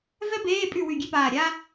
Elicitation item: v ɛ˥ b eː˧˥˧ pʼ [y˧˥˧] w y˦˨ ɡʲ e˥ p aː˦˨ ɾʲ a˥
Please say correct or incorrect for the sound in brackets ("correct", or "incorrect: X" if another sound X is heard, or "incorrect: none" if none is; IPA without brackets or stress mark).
incorrect: y˦˨